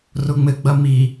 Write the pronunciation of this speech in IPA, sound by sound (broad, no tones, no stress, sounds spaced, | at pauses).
r ʊ ŋ͡m ɘ ɡ͡b ɐ m i